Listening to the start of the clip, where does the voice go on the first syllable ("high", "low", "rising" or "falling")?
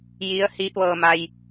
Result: rising